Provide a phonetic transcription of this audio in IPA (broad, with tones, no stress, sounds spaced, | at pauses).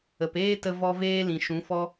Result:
ə˨ p eː˦ t ə˧ v ɔ˧ v eː˦ l ĩ˨ ʃ ũ˨˦ f ɔ˦